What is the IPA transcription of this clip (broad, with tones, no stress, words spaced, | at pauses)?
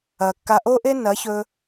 ɐ˨kːa˧ ʔo˦ʔe˦nɐ˨˦çɵ˧